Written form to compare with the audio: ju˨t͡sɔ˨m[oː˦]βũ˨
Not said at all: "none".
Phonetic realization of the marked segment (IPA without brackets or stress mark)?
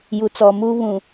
uː˦